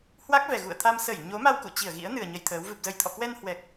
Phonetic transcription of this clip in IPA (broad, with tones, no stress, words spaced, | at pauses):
hwa˦˥k̚vɛ˨˩ ɣṵ˧˨ə̯t̪ʰa˧m sə˧˩j ɲo˨˦ma˧wkṵ˧˨ t͡ɕi˧˩ə̯ɣḭ˧˥ə̯nɨ˨˩ə̯ ɲə˧jt̪ʰəː˨˦w vɨ˨˩p̚zə˧˩jt̪ʰɔ̰˧˨ kwɛ˧nhwɛ˨˩k̚